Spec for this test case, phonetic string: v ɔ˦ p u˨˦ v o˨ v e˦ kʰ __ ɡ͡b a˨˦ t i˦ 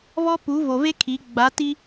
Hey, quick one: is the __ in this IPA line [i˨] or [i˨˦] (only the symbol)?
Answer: i˨˦